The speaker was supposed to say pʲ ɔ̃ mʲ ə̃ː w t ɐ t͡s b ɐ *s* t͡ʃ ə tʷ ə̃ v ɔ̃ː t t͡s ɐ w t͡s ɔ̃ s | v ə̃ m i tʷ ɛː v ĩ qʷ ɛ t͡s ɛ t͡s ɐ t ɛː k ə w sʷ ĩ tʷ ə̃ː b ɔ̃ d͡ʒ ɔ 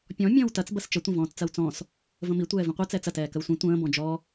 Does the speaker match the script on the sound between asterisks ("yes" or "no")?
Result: yes